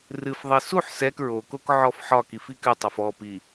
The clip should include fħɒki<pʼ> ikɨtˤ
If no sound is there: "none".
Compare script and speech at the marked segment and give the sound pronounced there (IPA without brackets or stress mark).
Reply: f